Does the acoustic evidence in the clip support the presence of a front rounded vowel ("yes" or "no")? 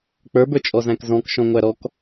no